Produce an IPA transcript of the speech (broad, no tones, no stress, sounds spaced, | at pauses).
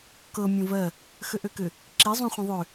k ɤ mʲ õ v ɜ | x ø ʔ ø k ʏ | ǁ i zˤ ũ χʷ ĩ ðˤ ø